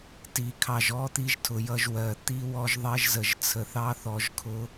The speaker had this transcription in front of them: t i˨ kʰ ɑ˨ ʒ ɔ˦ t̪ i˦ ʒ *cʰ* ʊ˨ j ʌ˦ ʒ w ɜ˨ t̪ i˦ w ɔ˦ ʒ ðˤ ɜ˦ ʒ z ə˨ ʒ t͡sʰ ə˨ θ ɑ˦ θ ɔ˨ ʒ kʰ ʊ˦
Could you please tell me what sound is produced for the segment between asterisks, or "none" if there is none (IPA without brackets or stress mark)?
tʰ